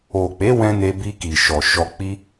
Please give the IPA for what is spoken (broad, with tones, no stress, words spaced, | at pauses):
o˨k͡pe˨˦ wɛ̃˦ ne˧bi˧ki˨ ʃɔ˨ʃɔ˧k͡pi˦